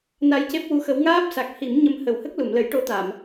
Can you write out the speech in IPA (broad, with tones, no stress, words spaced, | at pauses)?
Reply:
na˧jce˦˥p̚ wu˧˥xə˧˥w ŋaː˦˥p̚sa˨˩k̚ hi˨˩˦mɲə˧m hə˨˩˦whə˦˥k̚lu˨˩˨m lə˨˩˦jʈo˧˥t̪a˨˩˨m